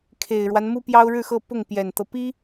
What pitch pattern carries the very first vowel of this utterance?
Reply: low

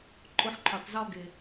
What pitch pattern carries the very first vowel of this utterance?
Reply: high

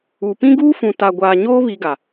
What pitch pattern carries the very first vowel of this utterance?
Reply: low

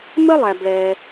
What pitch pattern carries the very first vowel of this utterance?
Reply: high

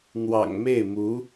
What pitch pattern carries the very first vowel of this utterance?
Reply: low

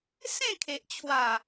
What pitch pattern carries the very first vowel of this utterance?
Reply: falling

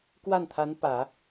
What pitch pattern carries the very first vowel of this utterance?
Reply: falling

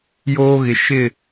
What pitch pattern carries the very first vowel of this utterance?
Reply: high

